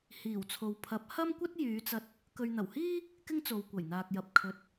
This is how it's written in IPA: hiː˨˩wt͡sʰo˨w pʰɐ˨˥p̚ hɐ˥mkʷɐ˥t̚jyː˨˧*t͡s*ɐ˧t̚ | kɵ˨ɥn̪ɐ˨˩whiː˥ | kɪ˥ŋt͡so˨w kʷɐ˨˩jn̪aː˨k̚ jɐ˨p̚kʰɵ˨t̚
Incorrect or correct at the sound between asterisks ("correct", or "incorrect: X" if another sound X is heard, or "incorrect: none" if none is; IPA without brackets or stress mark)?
correct